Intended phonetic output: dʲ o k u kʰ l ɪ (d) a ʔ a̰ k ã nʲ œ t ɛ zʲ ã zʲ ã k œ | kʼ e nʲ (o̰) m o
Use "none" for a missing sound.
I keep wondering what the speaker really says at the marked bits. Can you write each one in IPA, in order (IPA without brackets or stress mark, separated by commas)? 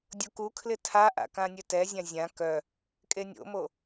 tʰ, o̰